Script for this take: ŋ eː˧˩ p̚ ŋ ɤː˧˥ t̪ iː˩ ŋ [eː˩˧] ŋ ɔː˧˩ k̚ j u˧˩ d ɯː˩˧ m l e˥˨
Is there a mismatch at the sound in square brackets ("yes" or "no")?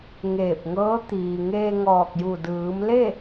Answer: yes